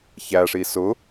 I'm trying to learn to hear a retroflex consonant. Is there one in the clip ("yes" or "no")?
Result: yes